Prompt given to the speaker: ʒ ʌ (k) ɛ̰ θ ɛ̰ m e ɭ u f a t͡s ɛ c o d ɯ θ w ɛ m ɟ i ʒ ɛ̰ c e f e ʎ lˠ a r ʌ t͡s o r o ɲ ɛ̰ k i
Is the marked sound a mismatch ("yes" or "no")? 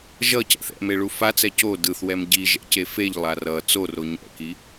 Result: yes